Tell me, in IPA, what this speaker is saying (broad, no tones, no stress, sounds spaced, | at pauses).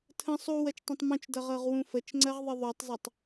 tʰ ə̃ sˤ u w ɜ t͡ʃ tˤ õ tˤ m ũ t͡ʃ d ʌ ʁ ɤ ʁ w ũ f ə t͡ʃ ŋ͡ǀ ɜ ʁ ðˤ ɨ ðˤ u tˤ z ʌ tˤ